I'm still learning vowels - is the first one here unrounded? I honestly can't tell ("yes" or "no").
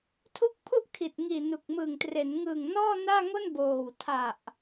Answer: no